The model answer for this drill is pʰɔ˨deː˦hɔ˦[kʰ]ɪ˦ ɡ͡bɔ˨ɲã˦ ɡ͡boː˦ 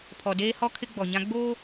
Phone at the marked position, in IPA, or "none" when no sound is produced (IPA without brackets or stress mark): kʰ